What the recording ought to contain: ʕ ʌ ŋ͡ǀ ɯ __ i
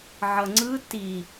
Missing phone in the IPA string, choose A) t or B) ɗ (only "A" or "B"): A